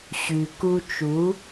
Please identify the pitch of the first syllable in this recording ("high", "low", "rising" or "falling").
low